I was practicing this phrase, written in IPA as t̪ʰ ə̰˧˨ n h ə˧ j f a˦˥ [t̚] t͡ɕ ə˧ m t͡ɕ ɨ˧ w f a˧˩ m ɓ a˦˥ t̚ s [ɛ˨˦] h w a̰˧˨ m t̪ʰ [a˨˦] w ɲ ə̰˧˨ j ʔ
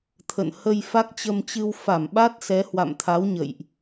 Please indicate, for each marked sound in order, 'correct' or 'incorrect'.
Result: incorrect: k̚, correct, correct

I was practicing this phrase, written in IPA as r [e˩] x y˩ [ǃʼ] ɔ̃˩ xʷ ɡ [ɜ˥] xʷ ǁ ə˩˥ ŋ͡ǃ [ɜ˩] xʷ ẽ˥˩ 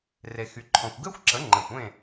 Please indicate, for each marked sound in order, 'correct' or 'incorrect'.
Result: correct, incorrect: ǃʰ, incorrect: ɛ˥, incorrect: ɛ˩

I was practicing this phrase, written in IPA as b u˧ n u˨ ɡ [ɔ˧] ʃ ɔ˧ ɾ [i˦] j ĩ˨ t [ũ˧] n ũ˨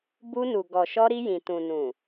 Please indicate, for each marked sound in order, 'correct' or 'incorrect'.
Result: incorrect: ɔ˨, incorrect: i˧, incorrect: ũ˨

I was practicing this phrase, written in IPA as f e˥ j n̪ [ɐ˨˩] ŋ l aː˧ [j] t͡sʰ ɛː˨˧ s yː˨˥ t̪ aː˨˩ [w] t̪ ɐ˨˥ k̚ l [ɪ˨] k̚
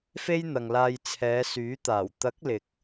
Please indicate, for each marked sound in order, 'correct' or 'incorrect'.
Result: incorrect: ɐ˨, correct, correct, correct

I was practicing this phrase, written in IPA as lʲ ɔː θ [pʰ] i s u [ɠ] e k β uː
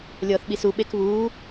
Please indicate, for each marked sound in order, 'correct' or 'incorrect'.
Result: incorrect: ɓ, incorrect: ɓ

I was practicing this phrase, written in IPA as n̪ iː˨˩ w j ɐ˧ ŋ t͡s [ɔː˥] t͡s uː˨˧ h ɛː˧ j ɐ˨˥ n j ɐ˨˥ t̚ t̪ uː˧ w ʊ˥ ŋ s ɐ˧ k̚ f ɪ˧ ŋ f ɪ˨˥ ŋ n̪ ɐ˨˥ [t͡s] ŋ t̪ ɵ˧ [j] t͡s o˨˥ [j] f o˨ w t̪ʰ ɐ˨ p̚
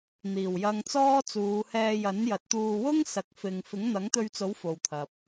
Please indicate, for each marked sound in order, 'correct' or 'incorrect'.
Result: correct, incorrect: none, incorrect: ɥ, incorrect: w

